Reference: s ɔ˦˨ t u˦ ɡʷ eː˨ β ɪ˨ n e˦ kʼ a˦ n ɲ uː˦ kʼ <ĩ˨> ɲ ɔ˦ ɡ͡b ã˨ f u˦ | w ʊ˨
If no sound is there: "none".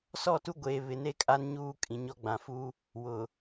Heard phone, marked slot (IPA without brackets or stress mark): ĩ˨